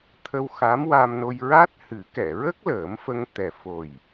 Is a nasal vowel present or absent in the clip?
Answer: absent